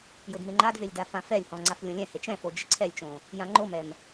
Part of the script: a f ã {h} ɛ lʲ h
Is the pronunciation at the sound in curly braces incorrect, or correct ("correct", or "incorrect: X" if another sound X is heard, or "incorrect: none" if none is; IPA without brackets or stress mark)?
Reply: incorrect: f